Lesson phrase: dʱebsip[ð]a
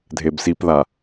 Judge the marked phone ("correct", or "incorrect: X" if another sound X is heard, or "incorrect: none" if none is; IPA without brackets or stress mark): correct